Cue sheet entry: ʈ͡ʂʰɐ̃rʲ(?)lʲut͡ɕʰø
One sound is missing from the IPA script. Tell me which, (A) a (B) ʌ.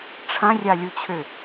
A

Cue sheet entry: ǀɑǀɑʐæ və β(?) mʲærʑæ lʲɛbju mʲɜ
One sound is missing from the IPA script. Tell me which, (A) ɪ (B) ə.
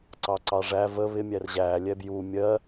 A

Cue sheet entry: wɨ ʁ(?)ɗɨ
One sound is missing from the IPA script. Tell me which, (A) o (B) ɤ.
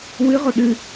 A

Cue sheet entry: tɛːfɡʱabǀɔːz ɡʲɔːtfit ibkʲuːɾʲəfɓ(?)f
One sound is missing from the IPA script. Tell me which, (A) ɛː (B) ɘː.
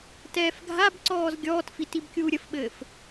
B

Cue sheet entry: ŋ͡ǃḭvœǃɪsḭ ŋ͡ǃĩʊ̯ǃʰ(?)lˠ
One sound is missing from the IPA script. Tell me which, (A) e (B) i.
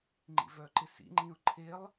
A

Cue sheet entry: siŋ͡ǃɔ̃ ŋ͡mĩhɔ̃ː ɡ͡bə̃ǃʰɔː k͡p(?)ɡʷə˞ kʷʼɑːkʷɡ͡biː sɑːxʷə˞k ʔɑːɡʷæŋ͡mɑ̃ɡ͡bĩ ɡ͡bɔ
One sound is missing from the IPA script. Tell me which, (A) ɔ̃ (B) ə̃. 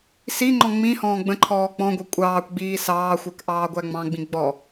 A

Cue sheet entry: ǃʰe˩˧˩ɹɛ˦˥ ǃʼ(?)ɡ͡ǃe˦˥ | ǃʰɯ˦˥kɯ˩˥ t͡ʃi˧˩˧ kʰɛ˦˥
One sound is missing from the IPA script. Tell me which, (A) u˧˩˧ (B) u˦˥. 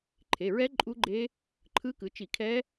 B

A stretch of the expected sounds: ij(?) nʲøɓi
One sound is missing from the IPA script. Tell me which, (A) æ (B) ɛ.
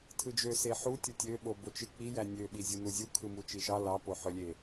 A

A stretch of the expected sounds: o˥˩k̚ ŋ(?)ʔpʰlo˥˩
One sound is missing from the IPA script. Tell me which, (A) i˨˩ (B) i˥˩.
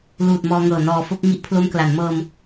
B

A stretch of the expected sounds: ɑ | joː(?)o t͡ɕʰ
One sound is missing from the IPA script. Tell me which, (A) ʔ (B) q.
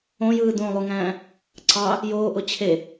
A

